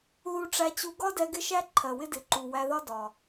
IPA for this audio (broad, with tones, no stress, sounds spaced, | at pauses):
ð u˧ ʈ͡ʂ æ˧ t͡ɕ u˧ ɡ ɒ˦ d ɛ˧ ɡ ɪ˦ ʃ æ˦ ǃʰ ɜ˨ w ɪ˦ d ɪ˨ ǃ u˨ w æ˧ ð ɒ˦ d ɒ˨